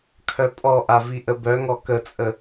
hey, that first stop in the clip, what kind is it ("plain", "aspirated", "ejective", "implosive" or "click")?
aspirated